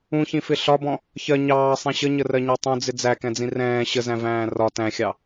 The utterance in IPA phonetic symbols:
ũçĩfɪ ɬɒbɔ̃ | çɜ ɲɑːsˤĩ ɕəɲərɜɲɑ tˤũd͡zɪ d͡zækɛ̃d͡zĩ rɛ̃ː ɕəzæ̃væ̃ː rɒ tæ̃xʲɑ

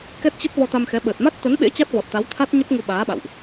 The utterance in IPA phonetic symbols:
kɛ˦˥t̚t͡ɕə˦˥t̚ vɔ˧t̪a˧mxɛ˨˦ ɓəː˨˩t̚ma˦˥t̚ t̪ə˨˦nɓḛ˧˥ t͡ɕa˦˥t̚vɔ˨˩t̚t̪a˨˦wt̪ʰa˦˥t̚ ɲə˦˥t̚ŋu˧ɓaː˨˦ɓa̰˧˨wʔ

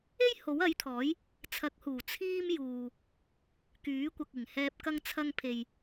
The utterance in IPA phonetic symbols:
e˥j ho˨˥wɐ˨˥jt̪ʰɔː˨˥j | t͡sʰɐ˨˥k̚huː˨˩ t͡sʰiː˥m juː˨ | kyː˨˥ kʷɐ˨k̚ɪ˨˩ŋhɛː˧p̚ kɐ˧ŋt͡sʰɐ˧ŋ pʰe˨j

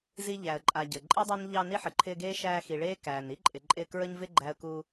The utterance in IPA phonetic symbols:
zi˦ʎæ˨ə̯ ǃʼa˨ ɟə˩ǃʼi˥dˤa˥n ʎɑ˦ ni˥ħə˩ǃʰɪː˦ɡeː˥ ʃæː˦xi˨ɭeː˥ kæː˩ni˥ǃʼɪ˨ ǃʼɪː˦kɹə˥ɲvɪ˥ ɡ͡ǃæ˦ə̯ku˦

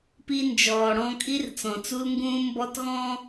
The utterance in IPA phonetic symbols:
pi˦nd͡ʒɔː˨ɽɔ̃˦ kʼi˦rt͡sɔ̃˨t͡su˦lŋɡũː˦ mbɔ˦tɣɔ̃˦

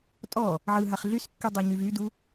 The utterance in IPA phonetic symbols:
tʼɔ | ʕɯɦaχ ɮyskːydˤɛɲyv ydu

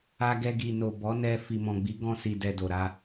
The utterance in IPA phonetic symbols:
a˧ɡɛ˧ɡi˨no˨ bɔ˨˦nɛ˧ fi˨mɔ̃˨ɡ͡bi˨˦ ɡɔ̃˧si˨dɛ˨ do˨ɾa˧

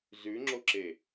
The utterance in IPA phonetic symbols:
zʉŋ͡ǁoǁe

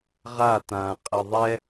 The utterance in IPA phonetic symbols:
ʁa tã qʼəðˤɛ

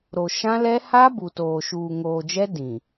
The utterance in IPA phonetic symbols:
ɾo˨ʃã˦lɛ˦ ha˦ bu˨toː˨ ʃuː˨ŋoː˨d͡ʒɛ˦ dĩ˨

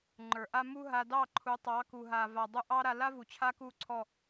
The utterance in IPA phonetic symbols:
ŋ͡ǃə˞˨ʔa˦ mu˦ ɦa˧dɑ˦˨ ǃʰu˨˦tˤɑ˨˦ku˨ɦa˨ va˨dˤu˧ʔɑ˦ ɾa˧la˦vu˨ t͡ɕʰa˦ku˦˨ǀʰɔ˦˨

